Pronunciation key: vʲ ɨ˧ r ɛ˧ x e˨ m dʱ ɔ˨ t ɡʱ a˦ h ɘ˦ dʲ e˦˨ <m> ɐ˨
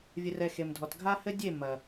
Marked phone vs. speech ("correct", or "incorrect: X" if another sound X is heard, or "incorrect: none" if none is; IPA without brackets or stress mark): correct